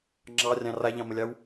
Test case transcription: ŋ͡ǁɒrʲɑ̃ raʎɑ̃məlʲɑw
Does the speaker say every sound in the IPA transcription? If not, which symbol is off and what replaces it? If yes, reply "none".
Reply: ɒ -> ɑ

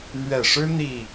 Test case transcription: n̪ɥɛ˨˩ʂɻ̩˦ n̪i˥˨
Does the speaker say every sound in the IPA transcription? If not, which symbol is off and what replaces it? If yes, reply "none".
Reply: none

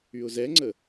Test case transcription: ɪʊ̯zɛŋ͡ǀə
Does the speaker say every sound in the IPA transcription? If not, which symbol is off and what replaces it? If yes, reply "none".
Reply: ɪ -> y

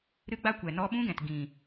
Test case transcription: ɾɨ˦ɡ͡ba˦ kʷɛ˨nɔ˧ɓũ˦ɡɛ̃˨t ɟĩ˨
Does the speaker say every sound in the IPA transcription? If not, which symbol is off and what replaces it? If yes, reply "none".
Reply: ɟ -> ɡ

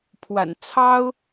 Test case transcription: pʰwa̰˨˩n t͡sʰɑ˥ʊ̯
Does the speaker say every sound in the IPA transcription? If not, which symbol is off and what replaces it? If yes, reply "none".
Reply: none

